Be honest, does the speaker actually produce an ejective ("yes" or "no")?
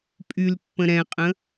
yes